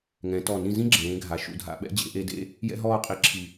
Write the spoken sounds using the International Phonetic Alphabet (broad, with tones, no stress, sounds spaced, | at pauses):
ŋ ɛ̃˩˧ t ɔ˧˩ n ĩ˥˧ z ĩ˥ ɡ͡ǁ ẽː˩˧ ɡʱ a˩˧ ʃ ṵ˧˩ dʱ a̰˥˧ ɓ ɛ̰˥ d͡ʑ ḛ˩˧ ʔ e˧ d ḛ˥˧ | j ɛ̰˥ ɦ ɔː˥˧ qʼ i˧˩ ǁʰ i˧˩